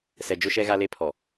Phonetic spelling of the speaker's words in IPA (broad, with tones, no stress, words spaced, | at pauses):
sɛ˨d͡ʒʊ˦ʃɛ˦ ɣa˦le˦pʰɔ˨